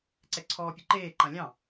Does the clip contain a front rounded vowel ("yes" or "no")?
no